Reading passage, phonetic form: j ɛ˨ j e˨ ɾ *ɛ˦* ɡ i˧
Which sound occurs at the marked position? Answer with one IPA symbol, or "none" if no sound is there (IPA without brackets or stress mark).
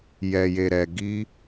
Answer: ɛ˨